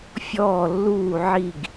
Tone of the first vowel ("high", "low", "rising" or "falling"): falling